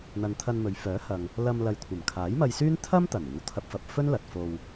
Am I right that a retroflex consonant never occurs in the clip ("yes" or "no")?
yes